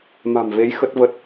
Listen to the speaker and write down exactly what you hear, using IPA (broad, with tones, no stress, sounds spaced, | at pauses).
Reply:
m a̤˨˩ m v e˨˦ j x ə˦˥ t̚ v ə˦˥ t̚